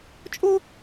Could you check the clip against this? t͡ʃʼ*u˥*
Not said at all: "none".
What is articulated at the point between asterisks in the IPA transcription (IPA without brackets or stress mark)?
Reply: o˥